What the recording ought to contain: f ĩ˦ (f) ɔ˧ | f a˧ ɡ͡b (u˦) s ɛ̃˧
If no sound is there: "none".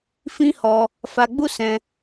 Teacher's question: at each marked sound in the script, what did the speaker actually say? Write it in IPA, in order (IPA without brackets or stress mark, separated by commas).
h, u˦